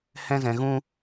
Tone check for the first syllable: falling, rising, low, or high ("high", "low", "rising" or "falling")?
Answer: high